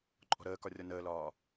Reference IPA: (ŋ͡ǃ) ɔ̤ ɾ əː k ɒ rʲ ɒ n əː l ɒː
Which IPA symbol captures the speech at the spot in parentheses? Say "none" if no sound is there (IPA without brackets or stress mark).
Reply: ǃʼ